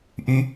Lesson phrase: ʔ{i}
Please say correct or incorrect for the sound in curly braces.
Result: incorrect